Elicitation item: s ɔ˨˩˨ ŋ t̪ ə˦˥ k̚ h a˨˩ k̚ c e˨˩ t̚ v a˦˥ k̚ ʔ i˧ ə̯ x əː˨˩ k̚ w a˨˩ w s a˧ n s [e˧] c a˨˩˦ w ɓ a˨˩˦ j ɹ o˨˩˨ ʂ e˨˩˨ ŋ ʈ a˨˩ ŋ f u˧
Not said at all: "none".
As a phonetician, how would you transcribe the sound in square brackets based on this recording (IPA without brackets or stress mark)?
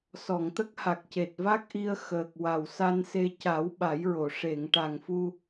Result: e˧